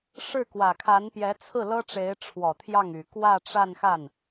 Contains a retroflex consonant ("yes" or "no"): yes